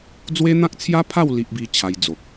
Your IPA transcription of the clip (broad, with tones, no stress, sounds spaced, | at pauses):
d͡z w e˦ n̪ ã˦ k̚ t͡sʰ j a˦ pʰ a˥˧ w l i˦ ʔ b i˦ t͡ɕʰ a˧ j d͡z o˨ k̚